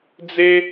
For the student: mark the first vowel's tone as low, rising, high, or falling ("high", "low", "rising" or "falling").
high